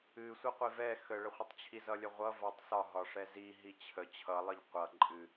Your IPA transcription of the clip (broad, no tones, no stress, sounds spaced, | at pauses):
ɨ sʷ ə qʷ i v ɛ x ə ɭ ə χʷ ʌ tˤ t͡ɕʰ i z ʌ lʲ ə ʁʷ ʌ v a tˤ s ɒ ɦ ɒ ʂ ɛ z i ɦ i t͡ɕʰ ə t͡ɕʰ ʌ lˠ ɨ ʎ qʷ ʌ ǃʼ ɨ